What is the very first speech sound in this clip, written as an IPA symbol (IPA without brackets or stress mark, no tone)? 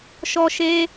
ʃ